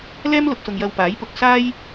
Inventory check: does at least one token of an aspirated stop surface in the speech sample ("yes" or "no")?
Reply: no